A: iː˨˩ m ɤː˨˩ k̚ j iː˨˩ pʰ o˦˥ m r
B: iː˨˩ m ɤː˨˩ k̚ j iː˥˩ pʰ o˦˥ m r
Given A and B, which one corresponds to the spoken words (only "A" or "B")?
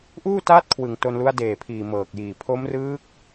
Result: A